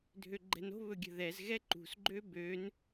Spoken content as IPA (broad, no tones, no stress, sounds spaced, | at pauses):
dʱ ø ɡ͡ǃ ɛ̤ n o̤ β ɵ ɡʲ ə̤ ð ɛ z ɣ ɛ ǃ ṳ s ɡ͡ǃ ø b ø n